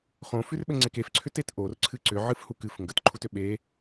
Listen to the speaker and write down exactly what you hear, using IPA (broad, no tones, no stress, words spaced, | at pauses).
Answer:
χõfʉrɓɘŋ͡ǀek efǀʰʏtet ʔorǀʰɨ ǀʏʕɨfhuk ɨf ŋɡətǃʰutʏ ɓe